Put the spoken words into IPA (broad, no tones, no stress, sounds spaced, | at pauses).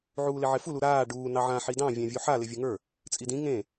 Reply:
ʕ uː l ɪ ʕ ɪ f u l u ɾ aː ɖ uː n ɑ ʕ ã ħ i d ɑ̃ vʲ ã vʲ u ħ a l ɪ vʲ u ŋ ə˞ | t͡sʼ i d ĩ ŋ ẽ